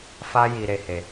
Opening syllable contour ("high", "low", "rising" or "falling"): high